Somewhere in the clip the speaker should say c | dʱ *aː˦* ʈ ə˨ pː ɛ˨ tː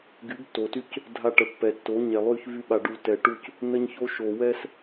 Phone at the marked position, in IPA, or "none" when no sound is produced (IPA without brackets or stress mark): a˦